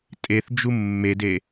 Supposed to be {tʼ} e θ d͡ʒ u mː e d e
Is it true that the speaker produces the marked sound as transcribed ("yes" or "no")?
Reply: yes